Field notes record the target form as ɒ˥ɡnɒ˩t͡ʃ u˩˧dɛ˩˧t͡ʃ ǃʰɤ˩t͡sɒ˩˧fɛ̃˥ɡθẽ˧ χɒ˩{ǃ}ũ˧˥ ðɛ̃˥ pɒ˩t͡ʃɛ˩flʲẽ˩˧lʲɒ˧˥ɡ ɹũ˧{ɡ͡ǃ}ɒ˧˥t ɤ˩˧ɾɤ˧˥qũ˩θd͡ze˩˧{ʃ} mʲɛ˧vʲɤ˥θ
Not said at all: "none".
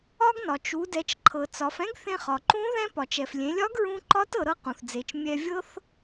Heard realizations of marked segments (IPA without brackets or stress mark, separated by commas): ǃ, ǃ, t͡ʃ